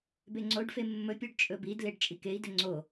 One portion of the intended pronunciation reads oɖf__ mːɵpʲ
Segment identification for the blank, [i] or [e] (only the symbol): e